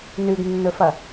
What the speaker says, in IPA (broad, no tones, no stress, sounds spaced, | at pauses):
n ʉ ɡ nː ɵ f ɐ